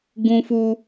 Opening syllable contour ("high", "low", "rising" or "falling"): high